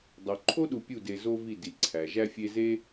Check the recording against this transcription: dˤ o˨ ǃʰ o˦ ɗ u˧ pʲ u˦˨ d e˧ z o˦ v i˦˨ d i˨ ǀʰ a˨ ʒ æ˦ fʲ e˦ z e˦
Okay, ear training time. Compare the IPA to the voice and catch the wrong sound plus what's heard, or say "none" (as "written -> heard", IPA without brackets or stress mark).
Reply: a˨ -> æ˨